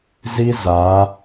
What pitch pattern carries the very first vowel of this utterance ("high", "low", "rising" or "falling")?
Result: high